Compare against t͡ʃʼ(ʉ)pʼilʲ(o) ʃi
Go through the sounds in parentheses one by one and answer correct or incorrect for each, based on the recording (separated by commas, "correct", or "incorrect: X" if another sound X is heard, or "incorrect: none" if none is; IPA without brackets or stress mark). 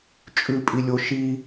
correct, correct